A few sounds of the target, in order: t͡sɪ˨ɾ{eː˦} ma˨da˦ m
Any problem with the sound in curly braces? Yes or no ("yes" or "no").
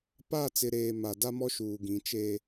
yes